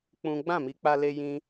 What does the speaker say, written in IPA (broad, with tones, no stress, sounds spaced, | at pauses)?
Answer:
k͡p ũ˦ ɡ͡b ã˦˨ m i˧ k͡p a˧ l e˧ j ĩ˧